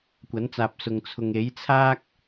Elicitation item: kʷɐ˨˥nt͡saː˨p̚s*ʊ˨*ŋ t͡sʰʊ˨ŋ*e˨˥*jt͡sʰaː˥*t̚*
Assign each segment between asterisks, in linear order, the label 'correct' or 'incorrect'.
correct, correct, incorrect: k̚

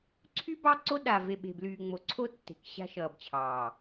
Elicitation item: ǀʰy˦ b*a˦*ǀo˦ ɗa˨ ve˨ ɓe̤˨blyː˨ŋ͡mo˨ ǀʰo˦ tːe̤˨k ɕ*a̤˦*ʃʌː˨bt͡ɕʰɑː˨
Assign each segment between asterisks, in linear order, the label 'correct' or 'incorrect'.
incorrect: ɑ˦, correct

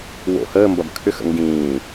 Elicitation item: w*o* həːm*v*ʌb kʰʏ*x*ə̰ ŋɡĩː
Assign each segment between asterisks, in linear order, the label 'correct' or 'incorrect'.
incorrect: o̰, incorrect: b, correct

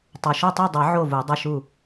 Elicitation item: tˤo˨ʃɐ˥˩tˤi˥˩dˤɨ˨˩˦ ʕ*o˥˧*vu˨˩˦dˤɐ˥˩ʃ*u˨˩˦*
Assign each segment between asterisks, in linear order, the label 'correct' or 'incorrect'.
incorrect: o˥˩, incorrect: u˥˩

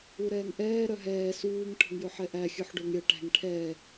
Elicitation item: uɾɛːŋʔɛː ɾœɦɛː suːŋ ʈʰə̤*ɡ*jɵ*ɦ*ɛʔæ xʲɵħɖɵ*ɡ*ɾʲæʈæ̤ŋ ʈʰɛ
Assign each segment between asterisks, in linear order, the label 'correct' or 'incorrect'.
incorrect: ŋ, incorrect: ħ, incorrect: ŋ

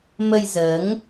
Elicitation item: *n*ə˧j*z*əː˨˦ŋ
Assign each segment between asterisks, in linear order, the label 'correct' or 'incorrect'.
incorrect: m, correct

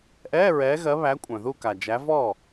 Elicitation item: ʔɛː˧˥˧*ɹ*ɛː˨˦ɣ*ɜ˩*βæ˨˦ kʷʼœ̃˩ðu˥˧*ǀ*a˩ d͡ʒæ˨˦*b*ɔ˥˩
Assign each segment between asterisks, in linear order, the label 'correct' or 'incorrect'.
correct, incorrect: ɜ˨˦, incorrect: k, incorrect: v

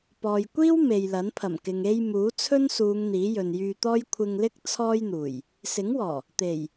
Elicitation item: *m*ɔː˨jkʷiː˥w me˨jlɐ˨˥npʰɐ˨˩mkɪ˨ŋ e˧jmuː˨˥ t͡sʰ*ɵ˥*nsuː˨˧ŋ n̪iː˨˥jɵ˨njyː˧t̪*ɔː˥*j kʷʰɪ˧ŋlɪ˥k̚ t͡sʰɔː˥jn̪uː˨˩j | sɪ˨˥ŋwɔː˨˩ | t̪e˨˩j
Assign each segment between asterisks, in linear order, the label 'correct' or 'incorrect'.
incorrect: p, correct, correct

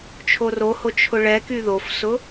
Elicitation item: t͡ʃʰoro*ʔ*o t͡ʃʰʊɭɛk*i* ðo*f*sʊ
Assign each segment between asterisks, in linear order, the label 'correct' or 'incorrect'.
incorrect: h, incorrect: y, correct

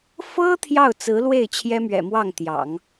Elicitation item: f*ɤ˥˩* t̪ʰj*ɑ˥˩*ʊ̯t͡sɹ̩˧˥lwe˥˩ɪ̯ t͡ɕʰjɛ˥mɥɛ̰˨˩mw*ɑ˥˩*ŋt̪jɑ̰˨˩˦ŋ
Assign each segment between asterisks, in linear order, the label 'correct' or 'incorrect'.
incorrect: ɤ˥, correct, correct

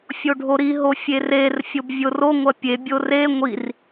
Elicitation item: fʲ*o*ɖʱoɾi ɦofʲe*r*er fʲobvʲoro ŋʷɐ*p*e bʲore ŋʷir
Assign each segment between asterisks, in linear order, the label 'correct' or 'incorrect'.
correct, correct, incorrect: pʲ

